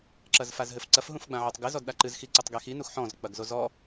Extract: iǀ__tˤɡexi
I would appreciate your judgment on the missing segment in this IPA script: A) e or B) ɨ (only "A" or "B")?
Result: B